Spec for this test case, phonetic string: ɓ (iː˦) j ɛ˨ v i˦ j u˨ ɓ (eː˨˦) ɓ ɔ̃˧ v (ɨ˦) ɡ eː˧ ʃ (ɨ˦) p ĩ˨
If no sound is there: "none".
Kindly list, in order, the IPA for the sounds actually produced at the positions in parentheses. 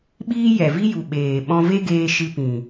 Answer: iː˦, eː˨, e˦, ɨ˧

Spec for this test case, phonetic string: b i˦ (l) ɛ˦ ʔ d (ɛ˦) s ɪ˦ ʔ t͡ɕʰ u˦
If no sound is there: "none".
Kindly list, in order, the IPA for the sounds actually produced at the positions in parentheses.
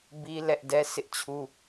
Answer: l, ɛ˦

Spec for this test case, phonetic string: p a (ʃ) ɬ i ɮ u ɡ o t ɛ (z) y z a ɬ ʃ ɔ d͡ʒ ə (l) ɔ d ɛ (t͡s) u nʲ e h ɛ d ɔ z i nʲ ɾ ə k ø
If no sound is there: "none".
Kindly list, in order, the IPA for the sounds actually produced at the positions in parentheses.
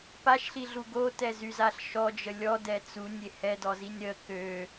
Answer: ʃ, z, lʲ, t͡s

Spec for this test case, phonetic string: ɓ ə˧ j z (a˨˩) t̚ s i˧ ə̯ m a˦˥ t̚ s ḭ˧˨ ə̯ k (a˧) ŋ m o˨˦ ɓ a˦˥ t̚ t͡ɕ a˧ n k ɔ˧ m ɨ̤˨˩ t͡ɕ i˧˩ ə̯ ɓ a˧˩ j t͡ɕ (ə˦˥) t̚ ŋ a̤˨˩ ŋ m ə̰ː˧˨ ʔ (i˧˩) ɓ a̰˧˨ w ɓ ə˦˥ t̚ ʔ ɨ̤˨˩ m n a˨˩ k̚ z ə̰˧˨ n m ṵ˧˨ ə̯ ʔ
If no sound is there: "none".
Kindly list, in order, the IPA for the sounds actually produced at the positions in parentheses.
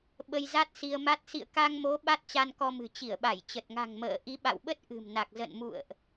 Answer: a˦˥, a˧, ə˨˩, i˨˦

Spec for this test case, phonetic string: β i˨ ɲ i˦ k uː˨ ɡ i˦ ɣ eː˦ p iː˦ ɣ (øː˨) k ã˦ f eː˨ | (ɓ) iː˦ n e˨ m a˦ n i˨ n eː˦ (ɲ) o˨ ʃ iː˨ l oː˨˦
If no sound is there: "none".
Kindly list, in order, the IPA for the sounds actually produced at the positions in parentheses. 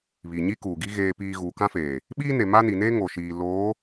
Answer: uː˨, ɓ, ŋ

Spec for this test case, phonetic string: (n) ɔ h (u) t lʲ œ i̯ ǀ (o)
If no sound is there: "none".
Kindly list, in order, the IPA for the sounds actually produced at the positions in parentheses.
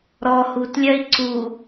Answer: ɾ, u, u

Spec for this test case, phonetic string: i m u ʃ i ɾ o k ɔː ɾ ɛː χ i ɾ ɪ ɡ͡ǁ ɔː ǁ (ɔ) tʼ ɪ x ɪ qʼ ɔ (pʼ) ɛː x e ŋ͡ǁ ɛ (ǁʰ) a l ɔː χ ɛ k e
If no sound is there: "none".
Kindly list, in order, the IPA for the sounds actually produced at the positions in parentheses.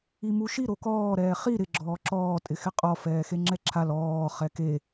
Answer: ɔː, f, ǁʰ

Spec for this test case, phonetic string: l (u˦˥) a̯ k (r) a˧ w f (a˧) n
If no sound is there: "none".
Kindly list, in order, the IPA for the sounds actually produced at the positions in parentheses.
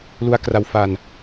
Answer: u˦˥, r, a˧

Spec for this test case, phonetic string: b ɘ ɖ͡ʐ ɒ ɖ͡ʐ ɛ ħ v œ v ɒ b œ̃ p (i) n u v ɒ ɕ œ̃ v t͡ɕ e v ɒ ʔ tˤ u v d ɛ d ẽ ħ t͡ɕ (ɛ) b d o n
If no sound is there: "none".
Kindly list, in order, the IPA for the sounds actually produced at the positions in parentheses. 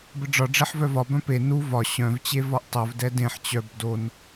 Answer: e, œ

